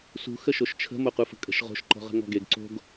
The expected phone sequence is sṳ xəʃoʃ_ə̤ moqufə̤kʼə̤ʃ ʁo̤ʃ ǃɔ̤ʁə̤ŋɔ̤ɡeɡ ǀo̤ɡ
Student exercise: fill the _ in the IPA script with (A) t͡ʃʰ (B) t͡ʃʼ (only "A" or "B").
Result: A